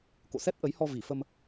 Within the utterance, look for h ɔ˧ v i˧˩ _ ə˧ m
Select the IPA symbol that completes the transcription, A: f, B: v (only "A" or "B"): A